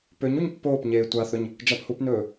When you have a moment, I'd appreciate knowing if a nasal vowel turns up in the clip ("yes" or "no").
no